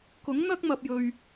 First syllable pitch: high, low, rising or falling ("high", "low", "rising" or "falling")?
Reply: rising